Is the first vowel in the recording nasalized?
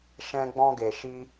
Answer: yes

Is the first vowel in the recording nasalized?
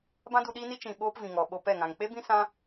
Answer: yes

